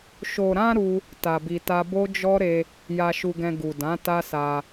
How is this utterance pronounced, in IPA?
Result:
ʃo˨ɾã˧ ɾu˦ | ta˧bi˧ta˦ bo˦d͡ʒɔ˦ɾe˧ | ja˧ʃu˧ɡɛ̃˧ ɡu˨dã˨˦ ta˦sa˧

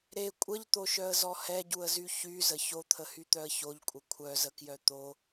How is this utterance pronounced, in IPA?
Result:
ɾe kʷʼəʎt̪oʃœə̯zɔ hɛɟuə̯zy çyzə çot̪ʰəhyt̪œə̯ çoʎkʷʼə kʷʰœzəkjœ t̪o

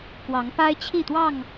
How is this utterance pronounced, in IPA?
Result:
kwɑ˨˦ŋpa˦ɪ̯t͡ɕʰi˥˨t̪wɑ˥˨ŋ

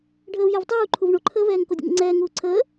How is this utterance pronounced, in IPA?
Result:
ɖʱəːvjɛvtˤuːǃʰuv ɳoǃʰəːvɛːŋ kodʲə̰ŋə̰ŋ͡ǀɛː ŋuːǀʰəː

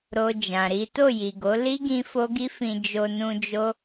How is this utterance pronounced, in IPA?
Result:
ɾo˨ d͡ʒã˨ɾi˨˦ to˦˨ji˨ɡo˨˦ li˦ ɡĩ˦fo˦ɡi˦fĩ˧ d͡ʒo˧nũ˧d͡ʒo˦

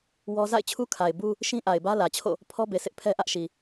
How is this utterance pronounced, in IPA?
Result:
wɔ˦ za̰˦˨ɪ̯t͡ɕʰu˦kʰa˨ɪ̯ bu˦ | ʃĩ˦ʔa˨ɪ̯bä˦ lä˨t͡ɕʰo̰˦˨ | pʰɔ˦be˨sʰɪ˦ʔ pʰɛ˦ʔä˦ʔʃi˨

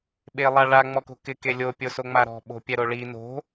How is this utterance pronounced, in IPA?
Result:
ɓelˠaɭa ŋ͡mɔko̤kɪ kelʲo pʲosoŋ͡maɾɔ̤ ɓo̤pʲɛɾoɭi no̤

